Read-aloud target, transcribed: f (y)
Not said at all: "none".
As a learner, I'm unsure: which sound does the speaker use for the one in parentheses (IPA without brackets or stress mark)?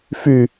y